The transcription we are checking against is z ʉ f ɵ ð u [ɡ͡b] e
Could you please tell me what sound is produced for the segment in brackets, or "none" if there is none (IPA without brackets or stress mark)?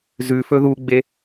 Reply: ɡ͡b